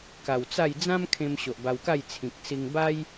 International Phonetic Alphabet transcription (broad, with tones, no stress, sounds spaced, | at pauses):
k a˨˩ w t͡s a˥˧ j d͡z ã˦ m kʰ ẽ˧ m ɕ o˨ ʔ b a˧ w k a˥˧ j t͡sʰ ĩ˨ k̚ s i˧ ŋ b a˦ j